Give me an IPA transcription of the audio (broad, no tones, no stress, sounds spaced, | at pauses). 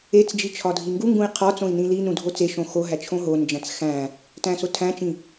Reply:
e t͡s d͡ʒ i t͡ʃʰ ɒ dʱ i ŋ ɡ u ŋ ɡ ũ i̯ qʰ ɒ t͡s õ i̯ n ĩ l i n ũ dʱ o t͡s e ʃ õ x o ɦ æ t͡ʃʰ õ ɦ o n d͡ʒ æ̃ t͡s x æ̃ | t æ̃ s o tʰ æ̃ t͡ʃ ĩ